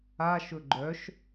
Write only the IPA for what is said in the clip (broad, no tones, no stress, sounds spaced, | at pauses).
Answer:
a ʃ ɵ ɡ͡ǃ œ ʃ